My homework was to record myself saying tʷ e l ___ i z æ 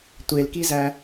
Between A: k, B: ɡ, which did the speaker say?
A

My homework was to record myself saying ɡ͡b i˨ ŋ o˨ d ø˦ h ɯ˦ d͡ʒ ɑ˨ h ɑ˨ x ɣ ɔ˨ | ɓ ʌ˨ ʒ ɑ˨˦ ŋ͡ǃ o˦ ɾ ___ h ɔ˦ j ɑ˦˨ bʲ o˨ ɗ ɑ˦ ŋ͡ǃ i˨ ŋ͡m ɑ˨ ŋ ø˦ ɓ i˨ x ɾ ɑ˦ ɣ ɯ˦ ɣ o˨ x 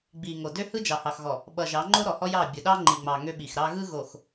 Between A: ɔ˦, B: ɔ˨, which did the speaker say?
B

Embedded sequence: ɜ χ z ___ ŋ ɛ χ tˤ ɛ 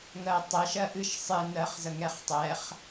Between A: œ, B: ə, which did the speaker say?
B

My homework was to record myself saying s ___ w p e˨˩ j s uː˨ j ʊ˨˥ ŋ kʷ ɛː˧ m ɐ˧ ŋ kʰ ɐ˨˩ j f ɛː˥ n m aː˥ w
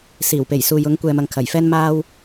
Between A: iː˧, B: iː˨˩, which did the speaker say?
B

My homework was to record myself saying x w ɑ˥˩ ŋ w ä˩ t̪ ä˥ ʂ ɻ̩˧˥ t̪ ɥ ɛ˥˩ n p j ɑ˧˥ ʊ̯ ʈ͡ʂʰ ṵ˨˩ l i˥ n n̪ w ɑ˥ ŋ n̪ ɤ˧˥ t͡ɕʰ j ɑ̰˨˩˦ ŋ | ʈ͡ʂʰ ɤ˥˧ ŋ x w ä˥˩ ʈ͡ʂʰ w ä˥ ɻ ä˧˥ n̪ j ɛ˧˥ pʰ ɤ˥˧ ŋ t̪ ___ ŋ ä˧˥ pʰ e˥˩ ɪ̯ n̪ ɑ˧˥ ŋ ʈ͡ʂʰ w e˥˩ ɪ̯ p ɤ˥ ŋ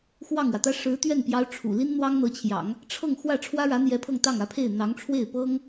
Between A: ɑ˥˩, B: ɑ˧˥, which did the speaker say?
A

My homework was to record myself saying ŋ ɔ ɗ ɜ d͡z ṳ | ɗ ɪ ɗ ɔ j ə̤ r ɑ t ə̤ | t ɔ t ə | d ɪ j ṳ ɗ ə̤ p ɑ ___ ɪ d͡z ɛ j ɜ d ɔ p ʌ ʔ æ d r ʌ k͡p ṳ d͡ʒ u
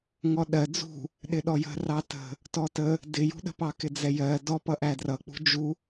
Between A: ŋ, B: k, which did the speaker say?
B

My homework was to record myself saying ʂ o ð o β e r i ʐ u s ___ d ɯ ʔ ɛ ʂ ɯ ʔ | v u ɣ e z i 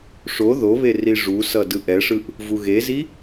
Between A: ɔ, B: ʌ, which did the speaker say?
B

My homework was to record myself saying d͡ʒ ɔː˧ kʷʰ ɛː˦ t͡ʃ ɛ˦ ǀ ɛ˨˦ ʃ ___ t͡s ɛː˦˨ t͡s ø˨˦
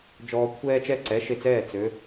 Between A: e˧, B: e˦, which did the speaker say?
A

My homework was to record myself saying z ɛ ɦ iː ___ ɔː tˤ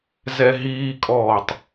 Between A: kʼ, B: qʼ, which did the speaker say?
A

